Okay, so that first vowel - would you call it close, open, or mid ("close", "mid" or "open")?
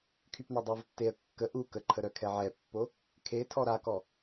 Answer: close